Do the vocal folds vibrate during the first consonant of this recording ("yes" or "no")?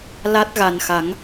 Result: yes